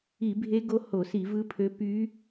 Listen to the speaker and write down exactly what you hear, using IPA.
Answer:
i˧˩˧bʱe˧˥ ɡo˧˥ ho˧˩˧si˧˩˧vɯ˧˥pʰø˧˥ py˧˥

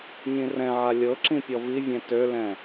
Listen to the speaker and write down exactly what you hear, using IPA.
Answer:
ɲĩrɛ̃ʕa lʲɤǁĩ pʲɔvivʲɛ̃ tølɛ̃

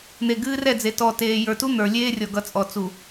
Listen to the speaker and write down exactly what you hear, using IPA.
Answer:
n̪e˨ ɡɨː˦rɛ˦˨d͡ze˨ tɔ˨ teː˨ jə˞˨tu˦ n̪ə˞˨ lʲeː˦rʲɔ˨ɡʌ˨ t͡sʼɔ˨ t͡su˨

